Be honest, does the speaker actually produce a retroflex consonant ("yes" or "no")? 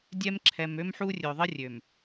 no